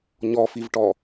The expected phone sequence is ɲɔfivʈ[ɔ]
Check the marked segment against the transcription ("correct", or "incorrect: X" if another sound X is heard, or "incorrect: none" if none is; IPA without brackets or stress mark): correct